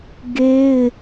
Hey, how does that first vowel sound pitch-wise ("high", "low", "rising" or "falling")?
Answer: high